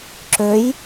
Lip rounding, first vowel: rounded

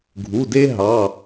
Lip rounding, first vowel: rounded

